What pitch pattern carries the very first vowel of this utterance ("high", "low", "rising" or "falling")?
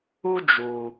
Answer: high